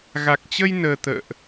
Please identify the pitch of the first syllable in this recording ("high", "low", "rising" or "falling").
low